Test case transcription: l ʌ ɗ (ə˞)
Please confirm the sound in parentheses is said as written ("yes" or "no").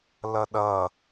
no